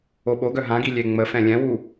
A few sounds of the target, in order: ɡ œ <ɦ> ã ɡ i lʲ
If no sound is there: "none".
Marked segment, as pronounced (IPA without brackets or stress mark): ɦ